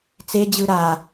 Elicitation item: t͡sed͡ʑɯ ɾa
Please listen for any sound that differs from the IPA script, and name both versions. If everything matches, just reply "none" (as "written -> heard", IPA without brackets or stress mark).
none